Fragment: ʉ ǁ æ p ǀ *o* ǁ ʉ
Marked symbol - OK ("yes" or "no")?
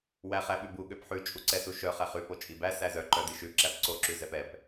yes